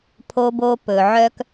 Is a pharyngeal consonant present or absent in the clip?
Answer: present